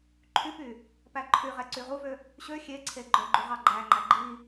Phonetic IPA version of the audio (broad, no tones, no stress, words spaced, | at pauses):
ǃʰypy | pæǃʰyʁɛ ǀyʁuvø | ɕø xʲeǀʰe ɡ͡ǃœɡ͡ǃu ʁɑɡ͡ǃæŋ͡ǃæ ɡ͡ǃi